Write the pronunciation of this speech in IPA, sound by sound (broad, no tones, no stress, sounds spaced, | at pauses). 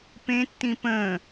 p ẽ tː ĩ p ə̃ː